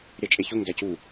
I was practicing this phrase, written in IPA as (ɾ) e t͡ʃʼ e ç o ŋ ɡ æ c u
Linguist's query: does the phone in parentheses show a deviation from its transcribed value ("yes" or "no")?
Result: no